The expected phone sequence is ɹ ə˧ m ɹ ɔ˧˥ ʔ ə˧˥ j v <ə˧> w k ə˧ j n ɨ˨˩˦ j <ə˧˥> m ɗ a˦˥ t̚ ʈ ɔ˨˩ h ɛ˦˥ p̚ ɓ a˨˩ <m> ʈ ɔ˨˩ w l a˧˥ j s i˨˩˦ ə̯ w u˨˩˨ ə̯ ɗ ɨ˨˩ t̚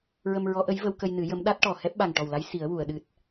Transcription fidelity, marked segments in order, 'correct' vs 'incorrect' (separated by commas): correct, correct, incorrect